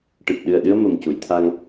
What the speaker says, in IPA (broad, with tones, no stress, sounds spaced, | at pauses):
ʈ ɨ˨˩ p̚ ɗ ɨ˨˩ ə̯ ɗ ɨ˧ ə̯ m ə˨˩ m c u˨˩˨ j t̪ʰ a˧ ŋ